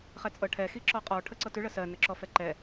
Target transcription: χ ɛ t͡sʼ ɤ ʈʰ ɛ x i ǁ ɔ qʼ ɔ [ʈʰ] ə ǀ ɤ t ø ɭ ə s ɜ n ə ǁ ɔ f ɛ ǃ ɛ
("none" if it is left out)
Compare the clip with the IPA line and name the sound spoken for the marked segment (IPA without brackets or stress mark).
ʈʰ